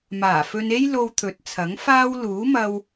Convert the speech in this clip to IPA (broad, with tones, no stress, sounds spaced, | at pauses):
m aː˨˩ f ɵ˧ n e˥ j l o˧ w t̪ʰ ɵ˨˥ t̚ t͡sʰ ɐ˨˥ ŋ f aː˥ w l uː˨˥ m ɐ˧ w